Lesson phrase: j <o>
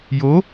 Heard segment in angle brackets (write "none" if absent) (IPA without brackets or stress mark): o